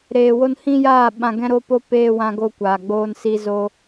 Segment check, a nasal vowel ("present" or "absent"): present